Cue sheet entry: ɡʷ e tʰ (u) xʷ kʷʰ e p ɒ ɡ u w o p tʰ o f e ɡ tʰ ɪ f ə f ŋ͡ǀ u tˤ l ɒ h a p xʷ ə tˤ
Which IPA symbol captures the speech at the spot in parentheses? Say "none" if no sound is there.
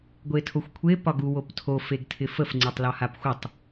o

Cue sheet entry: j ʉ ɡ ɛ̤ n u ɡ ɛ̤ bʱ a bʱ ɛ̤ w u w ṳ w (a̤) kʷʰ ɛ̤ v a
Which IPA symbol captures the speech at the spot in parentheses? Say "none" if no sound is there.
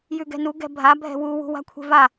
a̤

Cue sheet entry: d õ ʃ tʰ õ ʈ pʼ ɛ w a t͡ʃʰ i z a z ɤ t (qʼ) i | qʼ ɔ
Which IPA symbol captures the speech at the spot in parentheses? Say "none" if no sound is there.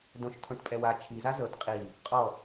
qʼ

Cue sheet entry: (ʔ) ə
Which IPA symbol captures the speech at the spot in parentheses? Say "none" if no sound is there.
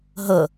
ɦ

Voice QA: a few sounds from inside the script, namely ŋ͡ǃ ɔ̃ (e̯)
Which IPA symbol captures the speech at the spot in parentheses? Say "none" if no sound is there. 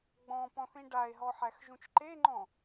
none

